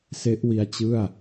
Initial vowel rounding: unrounded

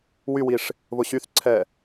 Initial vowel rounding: rounded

